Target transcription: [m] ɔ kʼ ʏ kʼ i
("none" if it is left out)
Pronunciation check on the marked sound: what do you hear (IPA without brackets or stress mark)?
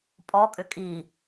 pʼ